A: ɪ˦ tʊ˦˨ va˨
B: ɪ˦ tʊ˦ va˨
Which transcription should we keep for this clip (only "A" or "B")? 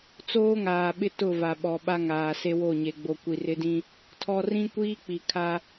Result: A